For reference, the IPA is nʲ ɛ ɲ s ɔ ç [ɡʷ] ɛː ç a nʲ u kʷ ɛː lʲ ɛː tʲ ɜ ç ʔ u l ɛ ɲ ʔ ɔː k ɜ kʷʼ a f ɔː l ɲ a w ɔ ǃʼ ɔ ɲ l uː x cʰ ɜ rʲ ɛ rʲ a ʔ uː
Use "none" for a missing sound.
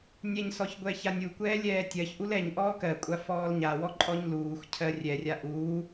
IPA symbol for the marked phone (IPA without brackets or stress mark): ɡʷ